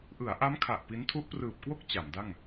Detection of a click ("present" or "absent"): absent